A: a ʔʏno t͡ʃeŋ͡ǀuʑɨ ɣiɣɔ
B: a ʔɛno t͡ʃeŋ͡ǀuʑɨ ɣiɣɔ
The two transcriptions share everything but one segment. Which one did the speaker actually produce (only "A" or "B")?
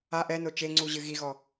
B